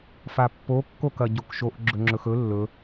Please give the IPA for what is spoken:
f a pː o kː o k ɐ ɟ o k ʃ o ʔ ɡ͡ǁ ɵ ŋ͡ǁ ɵ x ɵ lː ɵ

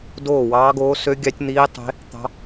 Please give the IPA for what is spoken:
d oː˥˨ w ɑː˦˥ ɡ oː˦˥ s ø˦˥ ɡʲ ɑ˦˥ tʲ n̪ iː˦˥ tˤ e̤˦˥ | t̪ ɑ̤˦˥

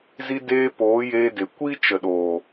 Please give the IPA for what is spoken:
z i˧ d eː˧ p oː˨˦ j eː˧ d e˨ kʷ i˦ t͡ʃ ə˨ ɗ oː˨

